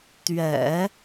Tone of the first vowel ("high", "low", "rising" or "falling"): low